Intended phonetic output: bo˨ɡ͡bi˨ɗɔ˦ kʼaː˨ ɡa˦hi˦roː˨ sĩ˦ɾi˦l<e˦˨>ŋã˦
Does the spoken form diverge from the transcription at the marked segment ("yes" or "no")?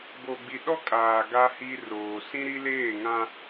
yes